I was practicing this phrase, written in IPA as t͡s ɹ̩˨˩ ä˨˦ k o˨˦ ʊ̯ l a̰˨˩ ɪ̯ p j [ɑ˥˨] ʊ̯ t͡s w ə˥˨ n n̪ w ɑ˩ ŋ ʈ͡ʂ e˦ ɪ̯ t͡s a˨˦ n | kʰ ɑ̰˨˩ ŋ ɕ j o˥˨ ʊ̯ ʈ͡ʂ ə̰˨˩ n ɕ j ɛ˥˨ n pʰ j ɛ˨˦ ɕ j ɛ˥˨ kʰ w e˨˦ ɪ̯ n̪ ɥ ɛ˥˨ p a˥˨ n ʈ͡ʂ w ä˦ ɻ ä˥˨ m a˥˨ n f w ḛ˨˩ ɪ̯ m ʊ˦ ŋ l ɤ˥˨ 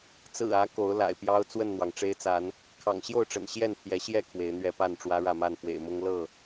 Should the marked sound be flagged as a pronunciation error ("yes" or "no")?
yes